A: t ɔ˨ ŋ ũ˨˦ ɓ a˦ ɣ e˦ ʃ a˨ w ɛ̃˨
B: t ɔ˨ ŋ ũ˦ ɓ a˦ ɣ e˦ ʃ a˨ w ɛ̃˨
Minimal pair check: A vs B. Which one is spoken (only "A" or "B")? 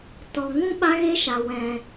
B